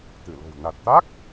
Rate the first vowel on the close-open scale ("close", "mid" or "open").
close